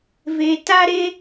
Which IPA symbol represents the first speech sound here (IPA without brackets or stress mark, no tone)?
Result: v